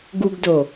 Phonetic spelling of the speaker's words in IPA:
ɡ u ɡ d o

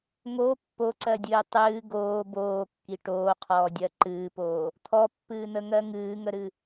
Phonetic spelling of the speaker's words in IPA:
ŋ o pː o ǀ ɜ dʲ ɨː tˤ ɨː ɡ oː b oː kː i ʈ oː qʰ ɔː dʲ ɜ ǃ ɨː p oː | t̪ʰ ɔ pː ɨː n̪ ə ŋ ɜ ŋ ɨː ŋ ə ɾ ɨ

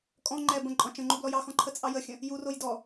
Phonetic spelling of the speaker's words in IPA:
kʼ ɔ̃ ŋ͡ǃ ɛ b ə̃ ǃʼ ɔ̃ t͡ʃ ə̃ ŋ͡ǃ u b l ɔ j ɑ x ɔ̃ ǃʰ ə t͡sʼ ɑ j ə xʲ ə̃ | j u r o j d ɔ

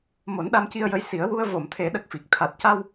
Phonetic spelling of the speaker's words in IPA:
m o˨˩˦ n ɗ a˧ m c i˧ ə̯ j ə˧˥ j s i˨˩˦ ə̯ w u˧ ə̯ v o˨˩˨ m t̪ʰ e˨˩˦ ɗ ə˨˩ k̚ f i˨˩ k̚ t̪ʰ a˨˩ t̚ c a˧ w

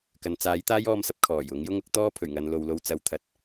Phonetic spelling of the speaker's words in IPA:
k ɐ˨ n t͡s aː˨˥ j t̪ aː˥ j ɔː˧ m s ɐ˥ p̚ kʰ ɔː˨˩ j ʊ˨˥ ŋ j ʊ˥ ŋ ʊ˥ k̚ t̪ ɔː˥ pʰ ɵ˨˩ ɥ ŋ ɐ˨˧ n l o˨ w l o˧ w t͡s ɐ˨˥ w t̪ʰ ɐ˨ t̚

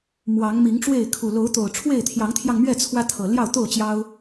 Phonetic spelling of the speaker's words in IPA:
m w ɑ˨˦ ŋ m i˨˦ ŋ ʈ͡ʂ w e˥˨ ɪ̯ kʰ u˨˩ l o˨˦ ʊ̯ t̪ o˨˩ ʊ̯ ʈ͡ʂʰ w e˥˨ ɪ̯ t̪ʰ j ɑ˨˦ ŋ t̪ʰ j ɑ˧ ŋ m ɥ ɛ˥˨ t͡sʰ w ä˦ t̪ʰ ɤ˨˩ l j ɑ˥˨ ʊ̯ t̪ o˥˨ ʊ̯ t͡ɕ j ɑ˦ ʊ̯

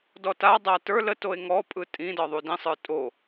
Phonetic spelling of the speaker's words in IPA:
d ɔ t a dˤ a t ə˞ l ə t o e̯ ŋ ɔ pʼ ɯ tʼ ĩ d ɒ ðˤ u d ĩ sˤ ə˞ tʼ o

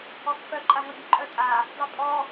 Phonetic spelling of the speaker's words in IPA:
ɔ kː œ ǃʼ a ŋ ʌ bʲ ʊ ǃʼ œ tʼ a | dˤ ɘ pʼ ɔ

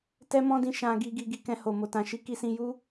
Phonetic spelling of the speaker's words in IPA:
t ɛ˦ m ɔ̃˦ d ĩ˧ ʃ ã˧ ɡ i˧ ɡ i˧ ɡ i˧ k ɛ̃˧ h o˨ m o˨ t ã˨ ʃ i˨˦ k i˧ s ĩ˧ j u˦

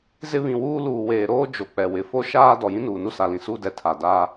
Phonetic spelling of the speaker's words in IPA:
z ɪ˦ β ĩ˨ w uː˦ l uː˨ w eː˨ ɾ oː˦ d͡ʒ o˨ k͡p ɛ˨ w ɪ˨ f o˦ ʃ aː˦ d ɔ˨ j ĩ˦ n uː˨ n u˦ s a˨ l ĩ˨ s u˦ d ɛ˨ tʰ a˨ d aː˦

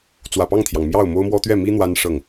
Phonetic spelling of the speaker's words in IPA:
t͡s w ä˨˩ p ɑ˥˩ ŋ t̪ʰ j ɑ˩ ŋ m j ɑ˥˩ ʊ̯ m o˥ ʊ̯ m w ɔ˥ t̪ ɥ ɛ˥˩ m i˥ n̪ w a˥ n ʂ ɤ˥˩ ŋ

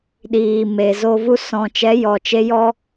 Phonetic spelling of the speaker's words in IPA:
ɗ iː˨ m e˨ z o˧ v u˦ s ɔ̃˨ t͡ʃ ɛ˨˦ j ɔ˨ t͡ʃ e˧ j ɔ˦

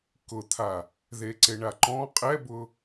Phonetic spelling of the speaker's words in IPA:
k ʊ t̪ʰ a | ð e ǀ e ɳ a ǃ ɔ̃ qʼ ɛ b ʊ

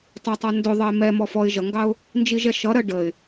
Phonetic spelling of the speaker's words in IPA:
tˤ ɜ tˤ ɔ n d ʊ ðˤ ʌ ɪ̯ m ɛ m ɔ f ɔ ɪ̯ ʒ ʌ ŋ ɡ ɑ ʊ̯ | n d͡ʒ i ʒ ɛ ʃ ʌ ɾ ɜ ɖ ə ɪ̯

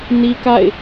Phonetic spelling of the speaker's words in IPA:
n i˦ k a̰˦˨ ɪ̯

